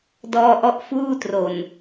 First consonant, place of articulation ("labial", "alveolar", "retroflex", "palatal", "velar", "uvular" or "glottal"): alveolar